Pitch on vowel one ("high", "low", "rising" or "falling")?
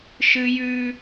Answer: high